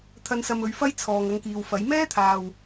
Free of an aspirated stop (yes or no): no